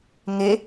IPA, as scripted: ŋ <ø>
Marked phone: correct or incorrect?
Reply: incorrect